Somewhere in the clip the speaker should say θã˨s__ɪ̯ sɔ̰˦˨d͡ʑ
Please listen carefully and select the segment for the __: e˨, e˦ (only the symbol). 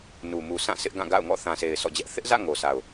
e˨